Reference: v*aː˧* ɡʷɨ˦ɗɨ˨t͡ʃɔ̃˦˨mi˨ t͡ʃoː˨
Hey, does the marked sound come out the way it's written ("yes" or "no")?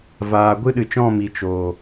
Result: yes